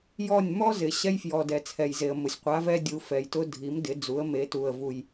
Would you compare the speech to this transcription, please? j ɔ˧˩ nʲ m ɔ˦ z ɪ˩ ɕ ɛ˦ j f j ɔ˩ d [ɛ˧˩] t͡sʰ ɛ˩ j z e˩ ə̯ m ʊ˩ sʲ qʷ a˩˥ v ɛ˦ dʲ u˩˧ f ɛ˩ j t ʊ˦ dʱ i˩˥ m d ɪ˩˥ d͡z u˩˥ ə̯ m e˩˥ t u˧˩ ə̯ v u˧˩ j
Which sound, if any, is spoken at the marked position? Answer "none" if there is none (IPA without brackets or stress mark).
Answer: ɛ˩